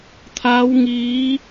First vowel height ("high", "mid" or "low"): low